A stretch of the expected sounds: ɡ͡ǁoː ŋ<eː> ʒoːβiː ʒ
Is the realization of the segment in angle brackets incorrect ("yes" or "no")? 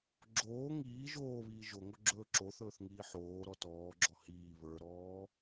yes